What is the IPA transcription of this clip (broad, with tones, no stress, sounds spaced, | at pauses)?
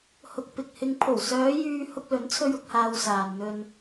h ʊ˧ k̚ p ɪ˨ k̚ h ɪ˧ ŋ pʰ o˨˩ w s œː˨˧ j yː˧ h ʊ˧ k̚ l ɵ˨˥ n t͡sʰ ɵ˧ ɥ ʊ˨˥ k̚ h aː˧ w s aː˨ n n̪ ɵ˧ n